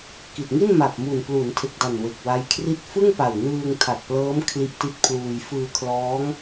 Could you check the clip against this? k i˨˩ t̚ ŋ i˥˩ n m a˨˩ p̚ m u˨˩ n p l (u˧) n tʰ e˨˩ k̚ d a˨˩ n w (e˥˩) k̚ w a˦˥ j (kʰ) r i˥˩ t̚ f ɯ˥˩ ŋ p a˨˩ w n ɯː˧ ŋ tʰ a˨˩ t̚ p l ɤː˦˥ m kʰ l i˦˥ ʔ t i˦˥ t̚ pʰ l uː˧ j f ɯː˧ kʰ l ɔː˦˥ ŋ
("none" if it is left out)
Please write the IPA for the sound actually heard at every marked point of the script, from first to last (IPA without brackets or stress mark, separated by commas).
u˩˦, e˨˩, kʰ